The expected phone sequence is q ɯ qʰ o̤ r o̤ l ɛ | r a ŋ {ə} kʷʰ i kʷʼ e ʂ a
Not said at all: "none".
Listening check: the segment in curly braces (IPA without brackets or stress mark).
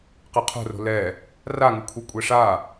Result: ɯ